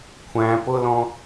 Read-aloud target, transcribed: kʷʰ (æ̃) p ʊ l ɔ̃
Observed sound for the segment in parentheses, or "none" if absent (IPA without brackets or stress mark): æ̃